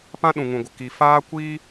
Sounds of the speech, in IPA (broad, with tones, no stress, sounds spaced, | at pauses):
p ã˦ ɗ ũ˨ ŋ ũ˨ ɡʷ ə˨ k i˨ f aː˦ kʷ iː˦